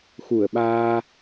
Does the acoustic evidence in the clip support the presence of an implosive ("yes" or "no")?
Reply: yes